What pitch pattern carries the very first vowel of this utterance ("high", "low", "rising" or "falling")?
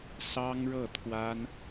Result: high